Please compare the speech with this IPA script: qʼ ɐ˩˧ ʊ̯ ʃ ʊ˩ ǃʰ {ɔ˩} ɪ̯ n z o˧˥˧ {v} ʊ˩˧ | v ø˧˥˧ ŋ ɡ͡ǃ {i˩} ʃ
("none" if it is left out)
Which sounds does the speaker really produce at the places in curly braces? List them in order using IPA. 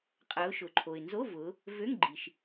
o˩, v, i˩

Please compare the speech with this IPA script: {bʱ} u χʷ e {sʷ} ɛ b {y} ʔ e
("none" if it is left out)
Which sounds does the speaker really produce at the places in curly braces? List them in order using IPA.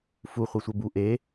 f, sʷ, u

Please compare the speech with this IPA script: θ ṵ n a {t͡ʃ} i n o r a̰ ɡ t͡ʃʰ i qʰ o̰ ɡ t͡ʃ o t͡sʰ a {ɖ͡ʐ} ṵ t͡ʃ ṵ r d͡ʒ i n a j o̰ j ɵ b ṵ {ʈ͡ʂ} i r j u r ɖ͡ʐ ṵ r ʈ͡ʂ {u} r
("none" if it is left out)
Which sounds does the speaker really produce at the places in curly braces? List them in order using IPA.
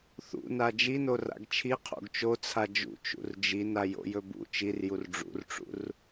d͡ʒ, d͡ʒ, t͡ʃ, ṵ

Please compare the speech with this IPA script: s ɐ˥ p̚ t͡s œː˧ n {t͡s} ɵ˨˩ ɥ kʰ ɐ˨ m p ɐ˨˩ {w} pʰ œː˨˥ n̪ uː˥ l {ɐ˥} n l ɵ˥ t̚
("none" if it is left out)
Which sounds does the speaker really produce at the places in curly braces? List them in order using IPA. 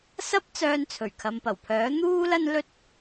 t͡sʰ, w, ɐ˥

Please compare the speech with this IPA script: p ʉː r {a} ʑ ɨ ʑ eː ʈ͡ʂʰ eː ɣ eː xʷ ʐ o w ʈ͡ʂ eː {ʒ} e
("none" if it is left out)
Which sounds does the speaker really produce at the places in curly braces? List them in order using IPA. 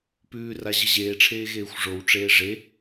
a, ʐ

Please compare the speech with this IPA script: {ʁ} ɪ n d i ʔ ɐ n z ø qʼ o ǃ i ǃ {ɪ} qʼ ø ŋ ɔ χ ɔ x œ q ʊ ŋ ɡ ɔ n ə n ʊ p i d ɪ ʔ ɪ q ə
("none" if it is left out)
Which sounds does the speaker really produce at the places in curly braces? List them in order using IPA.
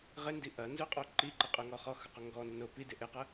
ʁ, ɪ

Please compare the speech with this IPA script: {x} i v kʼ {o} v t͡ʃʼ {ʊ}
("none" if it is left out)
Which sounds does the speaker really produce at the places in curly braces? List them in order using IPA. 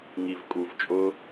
ŋ, u, ʊ

